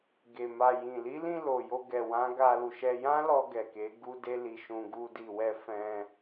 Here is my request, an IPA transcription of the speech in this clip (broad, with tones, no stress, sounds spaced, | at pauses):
ɡ e˨ m a˨ j ĩ˨ l i˨˦ l ĩ˧ l o˨ j o˧ ɡ ɛ˨ w ã˨˦ ɡ a˧ l u˨ ʃ ɛ˧ j ã˦ l ɔ˧ ɡ ɛ˨ k e˨˦ ɡ u˦ d e˦ l i˧ ʃ ũ˧ ɡ u˧ d i˨ w ɛ˧ f ɛ̃˧